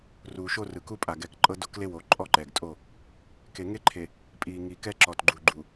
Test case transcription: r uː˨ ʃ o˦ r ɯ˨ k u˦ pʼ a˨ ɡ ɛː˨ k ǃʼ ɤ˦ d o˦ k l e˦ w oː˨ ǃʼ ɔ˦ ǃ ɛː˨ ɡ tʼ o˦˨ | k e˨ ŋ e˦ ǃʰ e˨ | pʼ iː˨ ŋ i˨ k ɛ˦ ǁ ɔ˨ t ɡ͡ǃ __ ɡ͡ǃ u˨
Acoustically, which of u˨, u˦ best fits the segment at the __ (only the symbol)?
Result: u˨